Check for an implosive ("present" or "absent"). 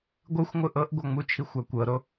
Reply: absent